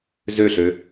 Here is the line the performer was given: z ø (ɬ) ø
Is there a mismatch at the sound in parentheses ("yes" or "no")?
no